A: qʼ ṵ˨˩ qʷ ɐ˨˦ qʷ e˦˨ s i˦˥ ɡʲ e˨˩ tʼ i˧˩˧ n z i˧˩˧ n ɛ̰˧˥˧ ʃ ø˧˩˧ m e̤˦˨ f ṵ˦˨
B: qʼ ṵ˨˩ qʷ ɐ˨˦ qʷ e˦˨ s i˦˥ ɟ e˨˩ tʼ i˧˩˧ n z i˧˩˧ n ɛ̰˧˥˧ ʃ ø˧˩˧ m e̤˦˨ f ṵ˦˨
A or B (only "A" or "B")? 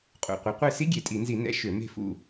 A